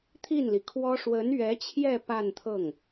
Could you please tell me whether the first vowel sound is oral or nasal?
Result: oral